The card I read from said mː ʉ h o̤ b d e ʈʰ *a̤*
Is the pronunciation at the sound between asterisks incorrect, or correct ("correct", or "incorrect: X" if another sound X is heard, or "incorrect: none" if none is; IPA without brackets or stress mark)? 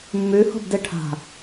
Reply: correct